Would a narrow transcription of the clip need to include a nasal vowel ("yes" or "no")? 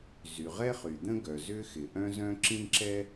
yes